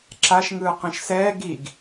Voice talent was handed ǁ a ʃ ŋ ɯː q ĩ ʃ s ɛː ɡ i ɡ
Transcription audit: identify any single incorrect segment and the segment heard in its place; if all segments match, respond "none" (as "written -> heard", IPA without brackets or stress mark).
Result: none